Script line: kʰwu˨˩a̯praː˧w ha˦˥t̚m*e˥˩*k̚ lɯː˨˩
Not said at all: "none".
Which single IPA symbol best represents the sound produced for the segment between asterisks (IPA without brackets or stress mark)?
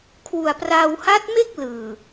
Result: e˥˩